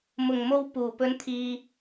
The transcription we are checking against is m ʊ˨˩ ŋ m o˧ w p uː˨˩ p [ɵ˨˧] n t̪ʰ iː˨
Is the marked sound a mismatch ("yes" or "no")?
no